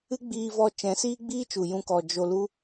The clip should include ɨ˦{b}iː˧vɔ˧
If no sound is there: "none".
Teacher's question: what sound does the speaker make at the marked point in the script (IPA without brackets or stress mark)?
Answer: ɡ͡b